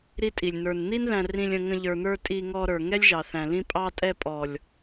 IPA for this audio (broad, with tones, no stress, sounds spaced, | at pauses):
ɾ i˦ tʼ i˨ lʲ n ə˞˨ n n̪ i˦ n ð æ̃˧ r ĩ˧ lʲ ə̃˧ ŋ ə̃˧ ʎ ə˞˨ n̪ ə˞˧ tʼ i˧ ŋ ɔ˧ ɾ ə˞˨ ŋ ɛ˦ lʲ ʒ ɑ˨ θ æ̃˨ l ĩ˧ pʼ ɑ˧ tʼ ɛ˧ pʼ ɔ˨ lʲ